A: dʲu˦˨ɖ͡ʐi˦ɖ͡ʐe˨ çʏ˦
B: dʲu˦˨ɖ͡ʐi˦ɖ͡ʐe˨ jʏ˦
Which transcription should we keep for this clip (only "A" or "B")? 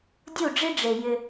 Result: B